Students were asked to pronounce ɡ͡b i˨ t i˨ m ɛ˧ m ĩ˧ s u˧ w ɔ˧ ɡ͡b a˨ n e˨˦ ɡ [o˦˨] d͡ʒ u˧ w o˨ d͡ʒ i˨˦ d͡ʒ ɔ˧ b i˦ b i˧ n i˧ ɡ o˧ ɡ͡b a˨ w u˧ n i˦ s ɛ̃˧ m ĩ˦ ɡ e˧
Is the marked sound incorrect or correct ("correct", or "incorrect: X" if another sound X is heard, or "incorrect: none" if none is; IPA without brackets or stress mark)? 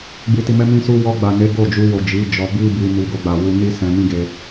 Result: correct